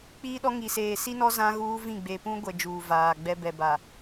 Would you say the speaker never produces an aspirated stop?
yes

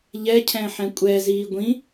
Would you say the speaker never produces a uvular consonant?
yes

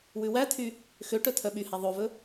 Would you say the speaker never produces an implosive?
no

